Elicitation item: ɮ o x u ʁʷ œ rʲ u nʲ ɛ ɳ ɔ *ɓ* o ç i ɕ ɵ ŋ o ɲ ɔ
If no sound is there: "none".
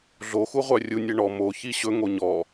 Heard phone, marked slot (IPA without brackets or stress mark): m